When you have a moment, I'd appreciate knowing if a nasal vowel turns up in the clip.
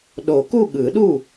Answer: no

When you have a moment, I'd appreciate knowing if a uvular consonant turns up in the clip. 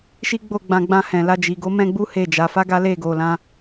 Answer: no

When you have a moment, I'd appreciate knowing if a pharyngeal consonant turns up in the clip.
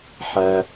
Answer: yes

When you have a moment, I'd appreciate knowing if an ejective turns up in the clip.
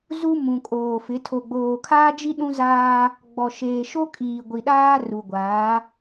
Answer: yes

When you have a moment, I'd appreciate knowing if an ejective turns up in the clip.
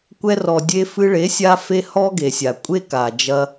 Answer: yes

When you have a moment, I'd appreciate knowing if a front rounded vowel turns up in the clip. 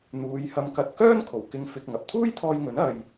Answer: yes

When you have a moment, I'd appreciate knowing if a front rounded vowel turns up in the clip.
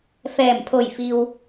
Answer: no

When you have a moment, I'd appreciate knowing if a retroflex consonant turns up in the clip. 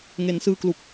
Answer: no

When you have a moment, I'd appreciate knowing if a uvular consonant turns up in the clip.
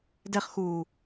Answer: yes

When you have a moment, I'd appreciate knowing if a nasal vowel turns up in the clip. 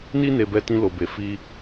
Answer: yes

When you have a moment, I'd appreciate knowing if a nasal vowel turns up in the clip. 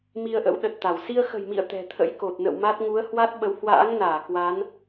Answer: no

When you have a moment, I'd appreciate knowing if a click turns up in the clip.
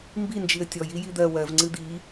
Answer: yes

